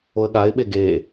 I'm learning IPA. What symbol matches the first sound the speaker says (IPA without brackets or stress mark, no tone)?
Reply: o